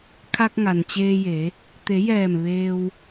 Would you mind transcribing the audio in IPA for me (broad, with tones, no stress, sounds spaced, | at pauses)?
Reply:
kʰ a˧ k̚ ŋ a˩ n t͡ɕ eː˧ j e˩˧ | t̪ e˩˧ j ɛː˧˩ m ʋ eː˧ w